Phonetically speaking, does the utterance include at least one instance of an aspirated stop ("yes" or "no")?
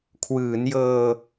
yes